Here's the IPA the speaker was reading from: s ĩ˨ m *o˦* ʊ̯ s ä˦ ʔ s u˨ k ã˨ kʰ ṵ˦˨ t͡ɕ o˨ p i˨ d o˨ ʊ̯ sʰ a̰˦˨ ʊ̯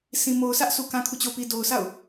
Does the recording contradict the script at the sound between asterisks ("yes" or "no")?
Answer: yes